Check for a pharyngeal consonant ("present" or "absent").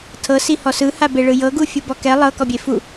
absent